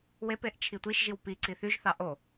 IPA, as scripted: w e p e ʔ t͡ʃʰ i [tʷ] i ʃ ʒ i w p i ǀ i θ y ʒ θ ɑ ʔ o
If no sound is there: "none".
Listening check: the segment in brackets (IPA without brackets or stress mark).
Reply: tʷ